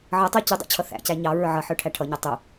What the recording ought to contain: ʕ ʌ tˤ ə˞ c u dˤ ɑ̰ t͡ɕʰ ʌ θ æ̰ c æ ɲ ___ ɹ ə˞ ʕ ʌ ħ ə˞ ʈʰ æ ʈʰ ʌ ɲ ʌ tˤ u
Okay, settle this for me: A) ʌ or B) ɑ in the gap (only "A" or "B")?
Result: B